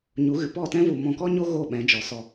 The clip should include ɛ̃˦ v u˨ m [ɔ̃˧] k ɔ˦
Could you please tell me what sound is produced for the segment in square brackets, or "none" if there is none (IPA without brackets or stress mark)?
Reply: ɔ̃˧